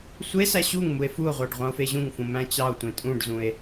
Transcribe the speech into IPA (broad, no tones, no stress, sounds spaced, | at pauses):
sʷ e s æ ɕ u ŋ m u e̯ f u o̯ ʁʷ ɑ ɖ ʁʷ ɑ̃ o̯ f e ʑ ũ ŋ f ũ m æ̃ t͡ɕ ɑ o̯ tʷ ẽ tʼ ũ ɖ z ũ e̯